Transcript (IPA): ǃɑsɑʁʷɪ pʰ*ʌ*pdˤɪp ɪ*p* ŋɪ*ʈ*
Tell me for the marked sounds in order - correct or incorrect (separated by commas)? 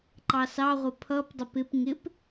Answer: correct, correct, incorrect